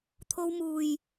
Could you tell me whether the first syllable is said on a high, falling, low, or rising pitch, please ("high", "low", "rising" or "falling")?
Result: high